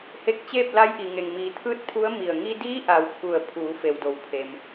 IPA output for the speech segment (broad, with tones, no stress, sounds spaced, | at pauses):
h e˧ k̚ t͡ɕ eː˥˨ p̚ l a˧˥ j ʔ i˩ ŋ e˩ ŋ m iː˩˧ t̪ʰ ɯː˥˨ t̚ pʰ u˧˥ ə̯ m i˧˩ ə̯ ŋ i˧ d iː˧˥ ʔ a˩ w kʰ u˧˩ ə̯ pʰ uː˩˧ f e˩ w d o˩ w pʰ e˩ m